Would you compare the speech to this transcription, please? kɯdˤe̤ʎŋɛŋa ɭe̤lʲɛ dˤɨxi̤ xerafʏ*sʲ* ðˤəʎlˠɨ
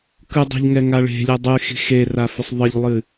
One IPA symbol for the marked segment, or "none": sˤ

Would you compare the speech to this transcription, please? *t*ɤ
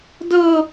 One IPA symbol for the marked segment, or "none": d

